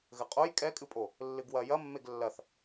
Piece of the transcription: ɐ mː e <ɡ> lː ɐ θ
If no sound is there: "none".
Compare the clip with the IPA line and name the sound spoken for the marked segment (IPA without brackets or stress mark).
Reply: ɡ